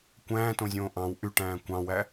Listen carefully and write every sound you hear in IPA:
kʷæ̃ːtõzʲõː ʔɑ̃w ʔyʈæ̃ː kʷɑ̃wæ

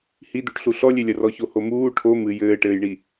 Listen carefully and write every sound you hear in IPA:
hid̪uʈɬu ɬɔlʲelʲɐ rɔçohomuː ʈʰo mɨ jɘːʈɘːjɳi

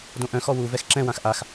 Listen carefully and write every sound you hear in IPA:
dõʔœ̃xɔ wu vɛxǁɛ̃wãx ʔax

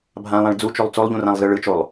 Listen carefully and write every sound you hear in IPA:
bʱãlˠãɭ d͡zut͡ʃolˠ t͡solˠʎũrãlˠzɯ ɭɯt͡ʃolˠ

